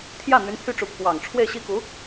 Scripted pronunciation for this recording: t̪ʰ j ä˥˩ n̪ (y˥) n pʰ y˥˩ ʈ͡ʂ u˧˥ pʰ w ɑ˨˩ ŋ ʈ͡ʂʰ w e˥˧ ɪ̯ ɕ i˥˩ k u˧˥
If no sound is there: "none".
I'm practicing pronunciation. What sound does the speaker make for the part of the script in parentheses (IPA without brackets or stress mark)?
y˧˥